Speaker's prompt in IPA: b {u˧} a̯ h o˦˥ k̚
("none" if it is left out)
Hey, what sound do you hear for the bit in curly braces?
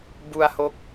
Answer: u˧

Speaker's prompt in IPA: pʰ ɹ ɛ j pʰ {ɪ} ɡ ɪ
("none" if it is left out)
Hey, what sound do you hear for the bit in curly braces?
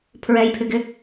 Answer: ɪ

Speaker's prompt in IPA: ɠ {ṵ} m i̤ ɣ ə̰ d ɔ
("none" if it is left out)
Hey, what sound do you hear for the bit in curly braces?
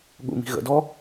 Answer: ṵ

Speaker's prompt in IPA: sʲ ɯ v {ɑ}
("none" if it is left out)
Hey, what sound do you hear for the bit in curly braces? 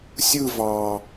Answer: ɑ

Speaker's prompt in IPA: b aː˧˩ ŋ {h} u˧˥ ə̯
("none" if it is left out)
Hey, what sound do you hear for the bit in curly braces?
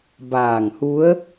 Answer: h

